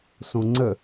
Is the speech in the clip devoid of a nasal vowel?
no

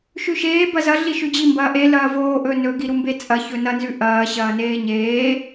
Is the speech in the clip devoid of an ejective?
no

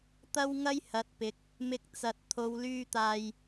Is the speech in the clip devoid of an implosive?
yes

